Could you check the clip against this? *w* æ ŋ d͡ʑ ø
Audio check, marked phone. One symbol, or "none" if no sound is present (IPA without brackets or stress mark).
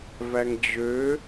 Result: v